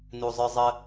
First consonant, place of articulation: alveolar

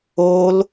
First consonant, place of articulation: alveolar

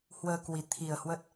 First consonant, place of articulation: glottal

